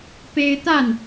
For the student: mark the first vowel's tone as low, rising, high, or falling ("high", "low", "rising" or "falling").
high